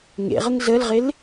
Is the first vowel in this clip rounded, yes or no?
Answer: no